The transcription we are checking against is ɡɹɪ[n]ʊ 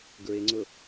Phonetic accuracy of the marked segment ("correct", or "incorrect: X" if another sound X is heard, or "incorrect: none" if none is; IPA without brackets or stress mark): incorrect: ŋ͡ǀ